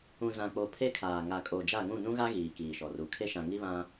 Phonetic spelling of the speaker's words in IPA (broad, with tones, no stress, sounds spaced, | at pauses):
ũ˨ z ã˨ k͡p o˨ pʰ e˦ kʰ aː˨ ŋ a˨ kʼ o˨ d͡ʒ a˦˨ ŋ ũ˦˨ n ũ˦ ɣ a˦ ɣ iː˨ k iː˨ ʃ ɔ˨ r u˨ kʰ e˦ ʃ ã˨ ŋ i˦ β ã˦